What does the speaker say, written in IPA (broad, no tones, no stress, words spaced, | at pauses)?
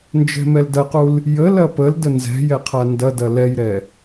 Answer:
nd͡ʒɛ̤mɛldɐqul | jə lɐpəldə nzɛ̤jɛ qʰandɐdɐ lɛjɾɛ